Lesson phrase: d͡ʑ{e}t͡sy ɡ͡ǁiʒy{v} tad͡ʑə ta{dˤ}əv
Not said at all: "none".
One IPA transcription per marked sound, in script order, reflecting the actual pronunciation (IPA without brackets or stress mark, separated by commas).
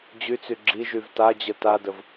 y, v, d